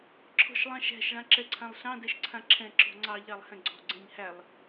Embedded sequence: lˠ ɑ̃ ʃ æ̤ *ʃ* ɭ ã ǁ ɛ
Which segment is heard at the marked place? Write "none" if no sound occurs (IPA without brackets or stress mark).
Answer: ʃ